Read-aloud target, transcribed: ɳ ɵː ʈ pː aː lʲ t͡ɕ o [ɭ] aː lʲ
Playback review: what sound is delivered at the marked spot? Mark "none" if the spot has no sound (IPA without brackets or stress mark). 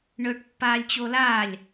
l